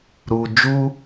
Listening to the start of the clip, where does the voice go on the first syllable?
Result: low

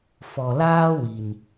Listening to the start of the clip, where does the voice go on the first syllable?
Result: low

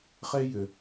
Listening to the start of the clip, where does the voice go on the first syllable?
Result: high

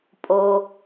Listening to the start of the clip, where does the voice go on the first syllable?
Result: low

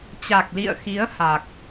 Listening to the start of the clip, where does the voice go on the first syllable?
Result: low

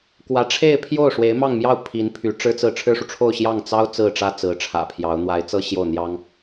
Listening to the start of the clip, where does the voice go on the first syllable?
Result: rising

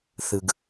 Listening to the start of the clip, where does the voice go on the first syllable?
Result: low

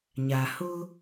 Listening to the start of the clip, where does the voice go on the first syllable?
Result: low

